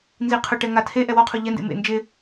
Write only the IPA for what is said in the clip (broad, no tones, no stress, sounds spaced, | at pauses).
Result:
n z i qʰ ʊ ʈ ɛ ŋ a tʰ e ʔ ɛ w ɔ qʰ o ʎ ɛ n d ḛ m ḛ n d͡ʒ ɪ